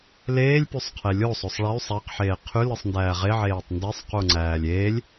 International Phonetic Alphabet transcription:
l eː lʲ p y sˤ qʰ e lʲ o sˤ o sˤ ɭ æ y̯ sˤ æ q ħ eː qʰ y l ɯ sˤ n d æː ʁ e ʕ eː tˤ n d e sˤ q u ŋ͡ǀ æː lʲ eː lʲ

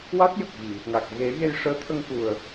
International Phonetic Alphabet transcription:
w a˦˥ t̚ j ə˨˩ k̚ ɣ i˨˩˨ | ŋ a˨˩ k̚ ɣ e˨˩˦ ɣ e˧ j ʂ əː˧˥ t̪ʰ ə˧ ŋ k u˨˩ ə̯

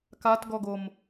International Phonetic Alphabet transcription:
k a t ɡ ɔ ɡ o m

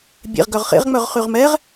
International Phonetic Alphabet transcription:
bʲ ḛ ʁ ɡ œ ʁ χ ḛ ʁ ŋ͡m œ ʁ χ y ʁ m ɛ ʁ

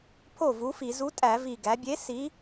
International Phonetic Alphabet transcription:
pʰ o˥˩ v u˨˥ f i˧˩˧ z u˨˥ tʼ æ˧˩˧ v i˨˩ ɡ æ˩˧ bʲ e˨˥ s i˨˥

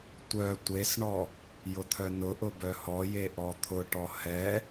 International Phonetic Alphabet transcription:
tʷ œ tʷ e s ɳ ɔ | j ʊ t̪ʰ œ n ʊ ʔ ʊ b œ h ɔ j e ʔ ɔ t̪ʰ ʊ ʈ ɔ h ɛ

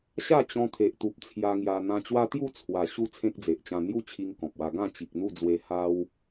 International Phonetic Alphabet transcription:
ɕ a˥˧ t͡ɕ ɔ̃˧ t̪ʰ e˨ ʔ t̪ u˨ p̚ t͡sʰ j a˧ ŋ j a˧ n̪ ã˧ t͡ɕ w a˦ t̪ j u˥˧ t͡sʰ w a˨˩ ɕ u˥˧ t͡sʰ ẽ˦ k̚ d͡z e˨ ʔ t͡ɕ ã˧ n̪ j u˥˧ t͡ɕʰ i˧ ŋ k ɔ̃˨ p̚ w a˧ ɡ ã˥˧ t͡ɕ i˨ k̚ n̪ u˥˧ d͡z w e˧ h a˦ w

